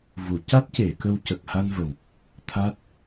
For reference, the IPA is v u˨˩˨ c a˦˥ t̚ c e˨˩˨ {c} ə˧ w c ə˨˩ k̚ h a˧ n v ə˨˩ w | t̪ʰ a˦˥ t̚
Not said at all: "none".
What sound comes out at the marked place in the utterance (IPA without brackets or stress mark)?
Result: k